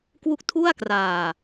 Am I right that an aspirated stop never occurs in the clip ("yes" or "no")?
no